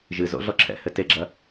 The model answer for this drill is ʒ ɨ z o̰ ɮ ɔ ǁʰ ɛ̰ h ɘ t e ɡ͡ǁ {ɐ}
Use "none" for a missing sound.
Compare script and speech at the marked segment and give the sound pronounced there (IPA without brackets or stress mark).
ɐ